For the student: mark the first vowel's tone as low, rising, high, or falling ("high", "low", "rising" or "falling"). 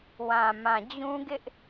low